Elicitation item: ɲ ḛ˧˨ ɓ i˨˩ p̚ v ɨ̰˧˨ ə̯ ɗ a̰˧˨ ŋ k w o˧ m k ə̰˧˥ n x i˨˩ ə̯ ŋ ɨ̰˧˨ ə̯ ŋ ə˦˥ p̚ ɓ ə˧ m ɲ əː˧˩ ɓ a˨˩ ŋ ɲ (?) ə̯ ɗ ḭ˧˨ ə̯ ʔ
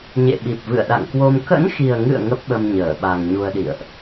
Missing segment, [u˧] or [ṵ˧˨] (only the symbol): u˧